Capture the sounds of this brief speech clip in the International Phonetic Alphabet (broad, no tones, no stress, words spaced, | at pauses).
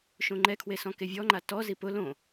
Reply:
ʃõŋ͡ǃɛkʰwe sɔ̃kevʲɔŋ͡ǃa tɔzi pʊ lõ